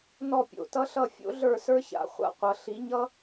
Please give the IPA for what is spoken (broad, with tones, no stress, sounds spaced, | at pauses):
n ɔ˥˧ pʲ o̰˥˧ t ʌ˥ ɬ ʌ˥˧ fʲ o̰˥ ɮ ə˞˥˧ s ə˞˥ ç a̰˥˧ χʷ a̰˥ qʷ ʌ˧˥ ɬ i˧˥ ɲ ʌ˥